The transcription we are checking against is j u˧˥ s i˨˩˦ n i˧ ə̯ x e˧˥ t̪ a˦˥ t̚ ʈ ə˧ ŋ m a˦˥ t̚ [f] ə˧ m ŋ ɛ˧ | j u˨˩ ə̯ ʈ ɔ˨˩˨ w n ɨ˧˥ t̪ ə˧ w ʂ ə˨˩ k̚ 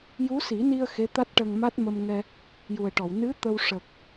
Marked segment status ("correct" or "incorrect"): incorrect